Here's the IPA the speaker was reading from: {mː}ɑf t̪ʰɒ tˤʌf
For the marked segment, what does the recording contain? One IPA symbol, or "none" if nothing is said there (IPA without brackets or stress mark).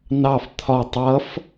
n